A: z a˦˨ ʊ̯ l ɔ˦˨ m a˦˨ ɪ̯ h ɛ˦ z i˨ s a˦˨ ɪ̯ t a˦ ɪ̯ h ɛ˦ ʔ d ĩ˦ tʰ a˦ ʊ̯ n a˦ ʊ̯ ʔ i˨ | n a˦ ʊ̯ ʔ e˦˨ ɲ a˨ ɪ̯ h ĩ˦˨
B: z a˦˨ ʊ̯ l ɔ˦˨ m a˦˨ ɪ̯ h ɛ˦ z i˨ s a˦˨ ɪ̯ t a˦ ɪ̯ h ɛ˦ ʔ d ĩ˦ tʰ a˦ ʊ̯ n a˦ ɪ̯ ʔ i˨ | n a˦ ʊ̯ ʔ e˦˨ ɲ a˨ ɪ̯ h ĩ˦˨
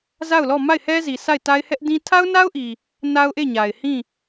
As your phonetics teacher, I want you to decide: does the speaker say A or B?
A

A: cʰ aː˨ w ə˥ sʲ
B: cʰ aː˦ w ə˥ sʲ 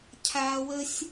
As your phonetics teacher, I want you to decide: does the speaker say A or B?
B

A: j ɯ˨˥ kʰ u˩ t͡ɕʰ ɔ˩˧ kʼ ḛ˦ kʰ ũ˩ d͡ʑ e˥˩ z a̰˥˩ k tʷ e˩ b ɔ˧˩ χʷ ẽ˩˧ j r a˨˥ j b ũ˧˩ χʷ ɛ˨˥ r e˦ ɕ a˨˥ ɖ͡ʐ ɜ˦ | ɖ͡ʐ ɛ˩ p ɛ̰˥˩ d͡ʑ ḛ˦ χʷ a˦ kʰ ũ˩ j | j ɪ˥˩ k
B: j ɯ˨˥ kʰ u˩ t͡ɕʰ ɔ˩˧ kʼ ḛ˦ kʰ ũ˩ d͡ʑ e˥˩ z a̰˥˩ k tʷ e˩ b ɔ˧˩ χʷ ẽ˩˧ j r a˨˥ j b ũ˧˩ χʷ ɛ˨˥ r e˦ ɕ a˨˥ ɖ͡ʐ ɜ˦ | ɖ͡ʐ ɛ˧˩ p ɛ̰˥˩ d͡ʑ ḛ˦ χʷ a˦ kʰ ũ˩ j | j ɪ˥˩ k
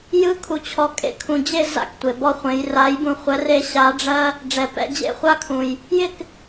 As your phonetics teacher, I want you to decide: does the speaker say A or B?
A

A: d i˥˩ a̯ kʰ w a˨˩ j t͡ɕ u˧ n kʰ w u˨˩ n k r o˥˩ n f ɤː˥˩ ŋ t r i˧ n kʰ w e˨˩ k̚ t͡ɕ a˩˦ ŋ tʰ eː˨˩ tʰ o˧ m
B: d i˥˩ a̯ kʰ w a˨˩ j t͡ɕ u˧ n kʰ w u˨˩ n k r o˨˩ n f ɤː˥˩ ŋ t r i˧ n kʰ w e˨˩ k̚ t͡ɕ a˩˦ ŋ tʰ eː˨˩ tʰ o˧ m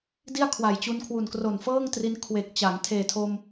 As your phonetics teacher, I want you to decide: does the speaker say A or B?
B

